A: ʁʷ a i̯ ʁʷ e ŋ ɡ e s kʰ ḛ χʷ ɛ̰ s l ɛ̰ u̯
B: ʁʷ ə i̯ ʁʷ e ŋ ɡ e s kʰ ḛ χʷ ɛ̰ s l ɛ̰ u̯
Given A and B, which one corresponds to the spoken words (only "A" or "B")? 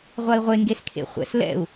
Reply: A